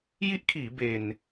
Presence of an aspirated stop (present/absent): present